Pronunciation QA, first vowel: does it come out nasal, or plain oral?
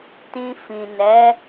nasal